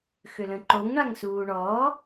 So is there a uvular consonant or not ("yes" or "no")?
no